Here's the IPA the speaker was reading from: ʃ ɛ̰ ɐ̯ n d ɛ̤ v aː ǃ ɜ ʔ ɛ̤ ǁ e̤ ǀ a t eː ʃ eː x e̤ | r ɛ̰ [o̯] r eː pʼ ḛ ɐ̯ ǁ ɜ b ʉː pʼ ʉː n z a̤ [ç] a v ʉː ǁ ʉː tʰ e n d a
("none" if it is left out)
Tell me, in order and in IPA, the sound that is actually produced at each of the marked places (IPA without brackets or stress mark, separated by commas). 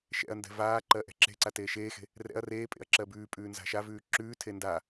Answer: ɐ̯, ʃ